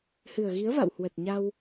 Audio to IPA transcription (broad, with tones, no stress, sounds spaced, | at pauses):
h ɨ˨˩ ə̯ ɣ i˨˦ ə̯ v a̰˧˨ w h w ə˨˩ t̚ ɲ a˧ w